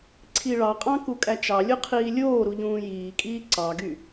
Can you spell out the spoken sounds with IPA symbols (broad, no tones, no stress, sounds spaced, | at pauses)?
ǀʰ i ɭ ɑ qʼ ɑ̃ k u kʼ æ t͡ʃ ɑ lʲ u qʰ iː lʲ oː ɾ u ʎ ũː j iː kʼ iː ǀ ɑ ɡ y